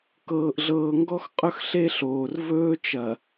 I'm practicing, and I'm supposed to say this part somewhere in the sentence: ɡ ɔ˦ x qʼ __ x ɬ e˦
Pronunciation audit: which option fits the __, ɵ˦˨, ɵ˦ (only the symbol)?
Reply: ɵ˦